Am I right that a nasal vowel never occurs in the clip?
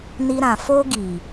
no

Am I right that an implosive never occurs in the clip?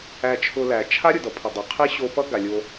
yes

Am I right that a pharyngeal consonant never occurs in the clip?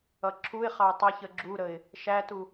yes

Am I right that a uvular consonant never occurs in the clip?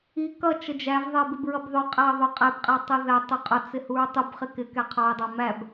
no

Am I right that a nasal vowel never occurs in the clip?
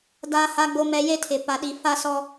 yes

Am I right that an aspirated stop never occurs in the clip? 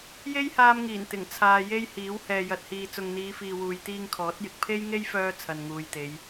no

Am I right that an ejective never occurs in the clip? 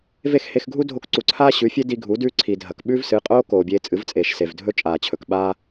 no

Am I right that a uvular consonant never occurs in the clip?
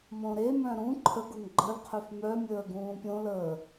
no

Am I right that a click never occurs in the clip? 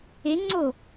no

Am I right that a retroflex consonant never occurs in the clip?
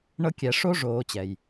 no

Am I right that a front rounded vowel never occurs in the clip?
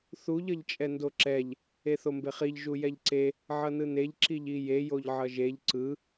yes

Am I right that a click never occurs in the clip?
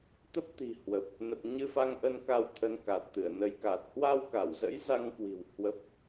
yes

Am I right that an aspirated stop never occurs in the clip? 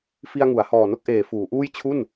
no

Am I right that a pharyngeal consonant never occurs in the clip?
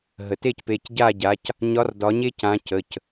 yes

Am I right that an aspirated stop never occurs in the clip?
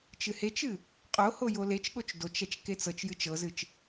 yes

